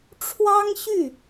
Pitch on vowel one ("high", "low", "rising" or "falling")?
high